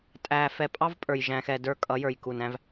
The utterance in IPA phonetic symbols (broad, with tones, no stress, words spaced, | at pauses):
tʼæ˨ fɛ˨pʼɑ˦vpʼə˞˨j ʒæ̃˨xɛ˨də˞˦kʼʌ˨˦ jə˞˨jku˨næ̃˦v